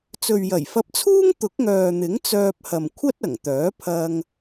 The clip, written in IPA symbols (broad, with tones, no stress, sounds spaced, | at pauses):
t͡s ɵ˨ ɥ j ɐ˨˩ j f ɐ˧ p̚ t͡sʰ uː˥ ŋ t̪ ʊ˨˥ k̚ ŋ œː˨ n̪ ɪ˨˥ ŋ t͡s œː˧ p̚ h ɐ˨ m kʷʰ ɐ˥ t̚ ɐ˨˩ ŋ t̪ œː˨˥ pʰ ɐ˧ ŋ